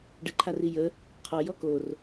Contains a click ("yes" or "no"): yes